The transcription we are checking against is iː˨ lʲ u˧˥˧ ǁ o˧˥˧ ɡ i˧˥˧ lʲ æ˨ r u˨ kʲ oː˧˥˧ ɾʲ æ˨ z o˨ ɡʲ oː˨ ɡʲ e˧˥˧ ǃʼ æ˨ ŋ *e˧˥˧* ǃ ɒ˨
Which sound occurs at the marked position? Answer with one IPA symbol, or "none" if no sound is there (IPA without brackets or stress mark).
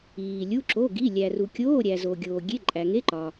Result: e˧˥˧